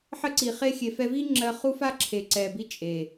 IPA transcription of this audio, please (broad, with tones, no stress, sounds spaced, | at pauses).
ħ ə˦ ǀ i˨ χ e˧ xʲ e˨ f ɛ˧ v i˦ ŋ͡ǁ ɜ˧ χ u˦ f a˦ ǁʰ e˨ ǀ ɛ˨ b i˦ t͡ʃʼ e˨